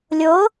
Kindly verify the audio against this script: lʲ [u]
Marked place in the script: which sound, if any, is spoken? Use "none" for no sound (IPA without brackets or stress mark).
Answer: o